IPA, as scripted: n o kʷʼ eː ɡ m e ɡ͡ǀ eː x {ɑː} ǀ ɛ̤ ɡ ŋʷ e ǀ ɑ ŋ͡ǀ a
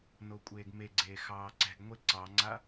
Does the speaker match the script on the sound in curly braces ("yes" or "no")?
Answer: yes